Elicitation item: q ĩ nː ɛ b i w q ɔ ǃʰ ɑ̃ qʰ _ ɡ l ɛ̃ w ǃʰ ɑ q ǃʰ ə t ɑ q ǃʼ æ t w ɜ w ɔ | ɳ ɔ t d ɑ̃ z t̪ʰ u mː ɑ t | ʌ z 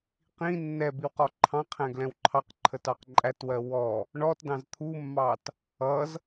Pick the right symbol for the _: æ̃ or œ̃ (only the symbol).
æ̃